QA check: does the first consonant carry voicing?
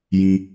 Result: yes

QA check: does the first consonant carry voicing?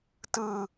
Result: no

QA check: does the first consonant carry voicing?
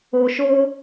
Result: no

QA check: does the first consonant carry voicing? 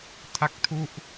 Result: no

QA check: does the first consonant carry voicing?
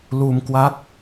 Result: yes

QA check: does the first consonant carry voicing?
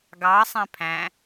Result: yes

